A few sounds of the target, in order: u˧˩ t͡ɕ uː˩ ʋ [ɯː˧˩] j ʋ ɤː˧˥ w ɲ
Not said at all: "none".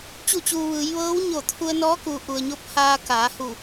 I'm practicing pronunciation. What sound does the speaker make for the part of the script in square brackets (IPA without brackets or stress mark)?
ɯː˩˧